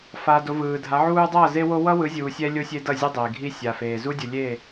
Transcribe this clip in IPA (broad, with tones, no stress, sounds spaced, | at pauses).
f a˨ d o˨ v ɯː˨ dʱ a˨˦ ʕ uː˦ dˤ ʌː˦˨ z e˦ w o˦ w ʌ˦ w ɯ˨˦ zʲ uː˨ sʲ ɛ˦ lʲ o˦ sʲ e˦ d ʌ˦˨ zʲ ɯ˦ dˤ eː˨ ɡʱ i˦ sʲ a˨ f eː˨ z u˦ dʲ u˨ lʲ eː˦˨